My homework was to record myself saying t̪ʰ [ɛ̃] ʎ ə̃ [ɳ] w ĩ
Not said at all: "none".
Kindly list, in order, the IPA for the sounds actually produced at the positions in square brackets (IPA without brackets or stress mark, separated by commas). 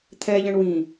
ɛ, ɳ